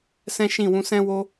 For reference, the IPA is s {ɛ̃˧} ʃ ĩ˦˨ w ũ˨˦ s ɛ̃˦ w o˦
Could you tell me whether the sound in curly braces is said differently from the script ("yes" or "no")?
yes